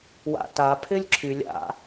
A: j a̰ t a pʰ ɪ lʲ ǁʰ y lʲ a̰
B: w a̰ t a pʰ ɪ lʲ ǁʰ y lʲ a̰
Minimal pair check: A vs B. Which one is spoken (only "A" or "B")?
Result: B